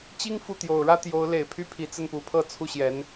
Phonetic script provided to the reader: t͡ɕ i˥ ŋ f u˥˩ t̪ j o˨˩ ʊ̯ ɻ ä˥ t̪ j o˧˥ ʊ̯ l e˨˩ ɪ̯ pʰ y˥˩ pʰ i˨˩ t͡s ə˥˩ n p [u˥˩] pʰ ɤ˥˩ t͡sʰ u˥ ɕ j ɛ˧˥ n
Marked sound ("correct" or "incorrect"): incorrect